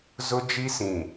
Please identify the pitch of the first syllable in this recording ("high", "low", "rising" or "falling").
high